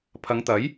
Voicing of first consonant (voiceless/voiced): voiceless